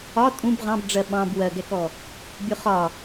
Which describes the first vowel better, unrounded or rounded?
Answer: rounded